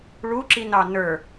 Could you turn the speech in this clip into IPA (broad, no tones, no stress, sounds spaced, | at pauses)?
ɭ u ǁ i n ɑ n ə˞